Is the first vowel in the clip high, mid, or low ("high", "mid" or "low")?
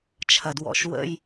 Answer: low